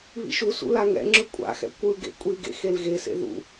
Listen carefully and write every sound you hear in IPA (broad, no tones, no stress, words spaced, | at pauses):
βḭʃusṵ laŋɛ̰ŋ͡ǁɯ kʷʼa̰xɛ̰ kʷɯɡḛ kʷʼiɡḛ xelɣesḛ ðṵ